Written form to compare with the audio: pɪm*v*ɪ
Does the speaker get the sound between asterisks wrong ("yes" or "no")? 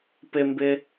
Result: yes